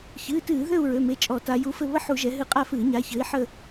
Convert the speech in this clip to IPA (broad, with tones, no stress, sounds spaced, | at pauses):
ç ɨː˩˧˩ t ɨː˧˩˧ ð ø˦˨ u̯ ɹ ø˩˧˩ m e˩˧˩ t͡ʃʼ ɔ˧˩˧ t a˩˧ j u˨˥ f ɘ˦˨ β ə˦˨ ħ u˧˩˧ ʒ ɛ˩˧ ɦ ɨ˧˩˧ qʼ a˦˨ f ɨː˧˩˧ ɲ a˩˧˩ ç ɘː˨˥ i̯ ħ ə˦˨